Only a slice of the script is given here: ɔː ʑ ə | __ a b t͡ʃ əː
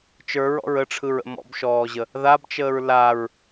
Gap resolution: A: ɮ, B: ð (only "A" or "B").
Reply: B